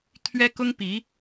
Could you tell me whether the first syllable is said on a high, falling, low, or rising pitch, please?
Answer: high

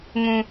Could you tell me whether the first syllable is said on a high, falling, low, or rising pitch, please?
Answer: high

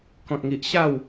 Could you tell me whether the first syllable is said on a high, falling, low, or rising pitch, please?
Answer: low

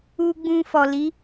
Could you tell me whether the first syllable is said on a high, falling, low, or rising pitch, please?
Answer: low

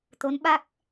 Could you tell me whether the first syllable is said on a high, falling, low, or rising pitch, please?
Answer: rising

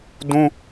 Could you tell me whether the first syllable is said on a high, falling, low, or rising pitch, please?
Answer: high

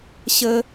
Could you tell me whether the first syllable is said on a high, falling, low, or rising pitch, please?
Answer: high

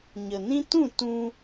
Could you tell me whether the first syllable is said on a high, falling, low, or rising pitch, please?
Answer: low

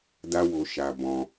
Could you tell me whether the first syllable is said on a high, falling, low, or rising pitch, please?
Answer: high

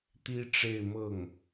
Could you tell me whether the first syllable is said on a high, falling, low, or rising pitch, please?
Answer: high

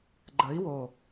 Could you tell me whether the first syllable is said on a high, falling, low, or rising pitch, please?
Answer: rising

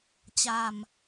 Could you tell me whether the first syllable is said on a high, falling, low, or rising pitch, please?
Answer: low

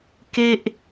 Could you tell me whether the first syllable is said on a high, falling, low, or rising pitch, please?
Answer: falling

